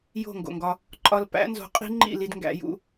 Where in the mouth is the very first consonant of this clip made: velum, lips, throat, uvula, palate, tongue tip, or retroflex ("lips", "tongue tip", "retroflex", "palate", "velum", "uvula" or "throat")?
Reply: palate